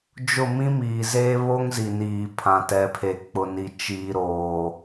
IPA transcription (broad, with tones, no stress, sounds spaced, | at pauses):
d͡ʒ ʊ˦˨ m ĩ˦ m iː˨ z eː˦ β o˦ ŋ z i˨ n iː˨ pʰ ã˨ t ɛ˨ pʰ e˨ k͡p ʊ˨ n i˨ t͡ʃ iː˨ ɾ oː˨